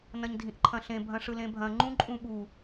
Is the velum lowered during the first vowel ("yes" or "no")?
yes